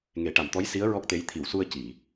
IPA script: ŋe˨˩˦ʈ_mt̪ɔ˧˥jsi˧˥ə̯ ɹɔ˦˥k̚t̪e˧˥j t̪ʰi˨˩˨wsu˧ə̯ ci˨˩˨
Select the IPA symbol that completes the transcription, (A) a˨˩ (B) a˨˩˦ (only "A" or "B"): A